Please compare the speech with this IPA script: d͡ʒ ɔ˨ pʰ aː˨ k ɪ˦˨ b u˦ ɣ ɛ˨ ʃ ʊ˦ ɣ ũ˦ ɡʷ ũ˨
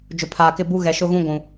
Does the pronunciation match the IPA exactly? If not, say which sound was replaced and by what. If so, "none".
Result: ɔ˨ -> ʊ˨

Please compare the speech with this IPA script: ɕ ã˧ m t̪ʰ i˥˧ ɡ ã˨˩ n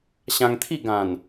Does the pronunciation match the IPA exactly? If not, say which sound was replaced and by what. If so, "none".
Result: m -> ŋ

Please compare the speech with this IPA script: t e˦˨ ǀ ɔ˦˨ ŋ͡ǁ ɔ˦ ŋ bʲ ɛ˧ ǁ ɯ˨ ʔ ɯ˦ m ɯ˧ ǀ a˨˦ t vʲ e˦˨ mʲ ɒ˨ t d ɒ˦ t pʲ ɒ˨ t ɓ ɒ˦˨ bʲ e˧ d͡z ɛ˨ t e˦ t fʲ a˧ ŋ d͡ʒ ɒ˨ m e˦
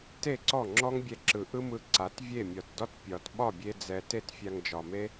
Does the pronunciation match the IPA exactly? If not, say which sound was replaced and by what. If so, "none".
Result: none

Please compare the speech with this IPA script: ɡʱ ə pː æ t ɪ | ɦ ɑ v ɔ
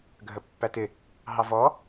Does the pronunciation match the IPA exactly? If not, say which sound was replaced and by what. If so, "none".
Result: none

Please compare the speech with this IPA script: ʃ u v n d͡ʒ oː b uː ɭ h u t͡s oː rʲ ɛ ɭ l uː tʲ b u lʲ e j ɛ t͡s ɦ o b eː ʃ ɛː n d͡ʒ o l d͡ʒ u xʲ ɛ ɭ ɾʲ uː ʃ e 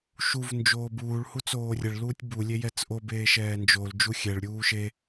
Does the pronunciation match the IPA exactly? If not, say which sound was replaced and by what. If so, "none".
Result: ɦ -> ʔ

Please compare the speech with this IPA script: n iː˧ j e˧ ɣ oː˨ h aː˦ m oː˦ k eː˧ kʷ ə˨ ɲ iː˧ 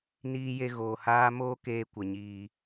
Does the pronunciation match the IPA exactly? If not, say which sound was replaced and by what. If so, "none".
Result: none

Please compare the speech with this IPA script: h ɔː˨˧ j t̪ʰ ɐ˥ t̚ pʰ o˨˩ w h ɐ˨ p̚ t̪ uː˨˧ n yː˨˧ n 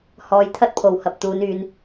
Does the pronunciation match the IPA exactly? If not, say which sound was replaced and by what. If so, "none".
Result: none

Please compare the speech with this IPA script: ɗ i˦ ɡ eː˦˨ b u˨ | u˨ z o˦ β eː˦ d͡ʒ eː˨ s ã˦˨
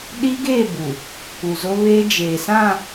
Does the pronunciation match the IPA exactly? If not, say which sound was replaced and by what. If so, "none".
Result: none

